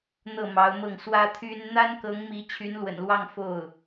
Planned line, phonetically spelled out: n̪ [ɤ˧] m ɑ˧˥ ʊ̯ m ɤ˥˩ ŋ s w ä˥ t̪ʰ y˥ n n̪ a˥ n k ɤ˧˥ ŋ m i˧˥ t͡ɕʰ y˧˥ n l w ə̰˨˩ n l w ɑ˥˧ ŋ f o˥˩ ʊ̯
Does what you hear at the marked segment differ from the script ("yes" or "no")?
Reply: yes